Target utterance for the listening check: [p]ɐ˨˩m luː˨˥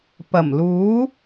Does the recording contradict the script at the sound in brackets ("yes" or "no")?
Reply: no